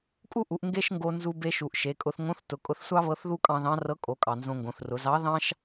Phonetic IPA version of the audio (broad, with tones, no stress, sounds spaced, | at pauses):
kʼ u˥ ʔ u˩˧ ʔ ŋ ɡ e˥ ʃ ŋ ɡ o˧ n z u˧ b e˧ ʃ u˩ ʔ ʃ e˩˧ kʼ ʊ˧ θ ŋ õ˧˥ θ t ʊ˩˧ kʼ ʊ˧ θ sʷ ɑ˥ β ɤ˧˥ θ ð u˥ kʼ ɑ̃˧ ð ɑ̃˧˥ r ɤ˧˥ kʼ o˩˧ kʼ ɑ˩ n z õ˧ ŋ ɡ õ˩˧ θ r ʊ˩˧ z ɑ˧˥ ð ɑ̃˥ ʃ